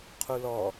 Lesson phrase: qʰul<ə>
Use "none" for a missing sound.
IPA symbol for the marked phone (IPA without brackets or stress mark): ɔ